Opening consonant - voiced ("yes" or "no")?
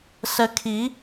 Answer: no